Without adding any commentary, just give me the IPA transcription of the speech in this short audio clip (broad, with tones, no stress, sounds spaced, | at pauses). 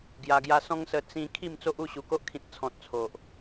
ɡ j a˧ ɡ j a˦ s ɔ̃˦ ŋ s ə˧ t͡s ĩ˧ kʰ i˥˧ m t͡s o˦ ʔ u˥˧ ɕ u˨˩ k o˦ ʔ kʰ ĩ˨ t̚ t͡sʰ ɔ̃˨ t̚ t͡sʰ o˨ ʔ